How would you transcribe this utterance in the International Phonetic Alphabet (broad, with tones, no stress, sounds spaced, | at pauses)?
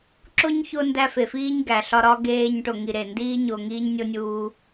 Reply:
ǁ o˥ ɲ ç o˦ n d æ˦ f e˩ f iː˥ ɲ ɡ æ˩ ɬ ɒ˦ ɾ ɒ˥ ɡ eː˦ ɲ ʈ o˨ ŋ i˨ ɾ e˩ n d iː˦ ɲ o˨ ŋ iː˥ ɲ nʲ o˥ nʲ uː˦